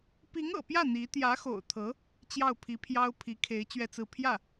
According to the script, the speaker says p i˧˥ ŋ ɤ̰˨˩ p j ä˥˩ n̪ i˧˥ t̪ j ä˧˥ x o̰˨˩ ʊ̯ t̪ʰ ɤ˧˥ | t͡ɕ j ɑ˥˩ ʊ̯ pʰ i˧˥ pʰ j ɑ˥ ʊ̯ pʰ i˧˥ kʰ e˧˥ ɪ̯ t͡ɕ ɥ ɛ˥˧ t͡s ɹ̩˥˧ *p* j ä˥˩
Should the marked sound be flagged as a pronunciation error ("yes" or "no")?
yes